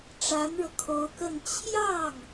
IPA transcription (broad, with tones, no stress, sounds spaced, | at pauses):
ʈ͡ʂ a˧˥ n ɻ ɤ˧ kʰ o˧˥ ʊ̯ k ə˥˧ n t͡ɕʰ j ɑ˥˩ ŋ